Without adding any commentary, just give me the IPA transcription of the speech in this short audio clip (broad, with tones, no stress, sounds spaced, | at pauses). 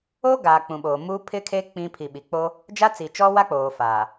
o˦ ɡ aː˨ k͡p ũ˨ ɓ oː˨ m uː˦ pʰ ɪ˦ kʰ e˦ k͡p ĩ˦ pʰ i˨ ɓ i˨ k͡p o˦ | d͡ʒ a˦ t͡s i˨ t͡ʃ ɔ˦ w a˦ k͡p oː˨ f aː˨